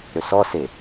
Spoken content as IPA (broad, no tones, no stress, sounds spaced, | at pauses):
ɾ ø s ɔ s e